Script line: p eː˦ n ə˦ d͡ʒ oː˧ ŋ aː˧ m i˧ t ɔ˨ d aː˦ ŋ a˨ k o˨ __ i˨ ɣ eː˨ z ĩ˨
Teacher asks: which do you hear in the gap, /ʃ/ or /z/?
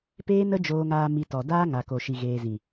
ʃ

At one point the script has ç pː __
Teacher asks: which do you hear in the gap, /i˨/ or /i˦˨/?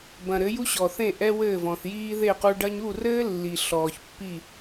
i˦˨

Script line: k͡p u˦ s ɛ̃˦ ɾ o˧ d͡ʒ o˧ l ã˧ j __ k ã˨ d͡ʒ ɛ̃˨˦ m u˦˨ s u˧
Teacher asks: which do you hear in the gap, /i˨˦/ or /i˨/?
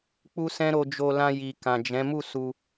i˨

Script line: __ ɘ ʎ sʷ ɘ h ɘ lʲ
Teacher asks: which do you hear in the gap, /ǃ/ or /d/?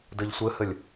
d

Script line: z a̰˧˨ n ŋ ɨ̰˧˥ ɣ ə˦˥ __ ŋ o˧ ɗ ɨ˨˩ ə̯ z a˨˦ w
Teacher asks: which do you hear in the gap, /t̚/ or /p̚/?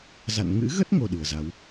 t̚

